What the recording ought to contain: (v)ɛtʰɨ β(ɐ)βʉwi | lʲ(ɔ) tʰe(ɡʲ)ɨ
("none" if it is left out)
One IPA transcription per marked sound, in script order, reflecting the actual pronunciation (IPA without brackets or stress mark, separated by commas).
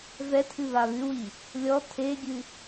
v, a, ɔ, ɡʲ